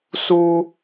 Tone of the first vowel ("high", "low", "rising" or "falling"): high